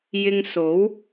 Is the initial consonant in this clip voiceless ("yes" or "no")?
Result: no